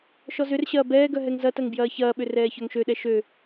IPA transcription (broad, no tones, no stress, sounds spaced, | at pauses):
ʃ ɔ z ʏ r ɕ ɐː b ɛː ɡ œ ɦ ɛ ŋ z ɐ t ɐ ŋ b j ɐː ç ɐː ɓ ʏ r ɛː ç œ ŋ ʃ ø ɗ ɛ ʃ ø